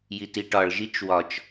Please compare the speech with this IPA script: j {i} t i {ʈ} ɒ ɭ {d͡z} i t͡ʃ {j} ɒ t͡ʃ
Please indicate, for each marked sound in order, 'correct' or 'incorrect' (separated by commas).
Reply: correct, correct, incorrect, incorrect